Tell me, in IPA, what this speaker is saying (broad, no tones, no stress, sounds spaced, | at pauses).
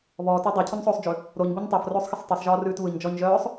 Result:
β ɔː t ɔ dˤ a cʰ o ɲ sˤ oː sˤ d͡ʒ ʉ | ɾ o ɲ b o ɲ tˤ a f r oː sˤ x ɪ sˤ tˤ ɯ sˤ ʒ ɔː r ʉː t β ɯ ɲ d͡ʒ ɔ ɲ ʒ œː sˤ